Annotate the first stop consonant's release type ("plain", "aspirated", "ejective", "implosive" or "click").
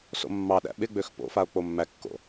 implosive